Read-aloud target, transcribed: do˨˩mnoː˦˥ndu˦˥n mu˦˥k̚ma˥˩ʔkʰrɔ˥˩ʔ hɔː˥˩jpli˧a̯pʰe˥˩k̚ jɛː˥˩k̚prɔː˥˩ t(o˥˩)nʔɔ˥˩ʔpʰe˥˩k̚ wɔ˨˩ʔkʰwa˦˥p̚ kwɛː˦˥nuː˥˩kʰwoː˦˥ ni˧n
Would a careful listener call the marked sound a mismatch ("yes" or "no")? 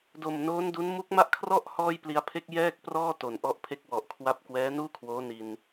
yes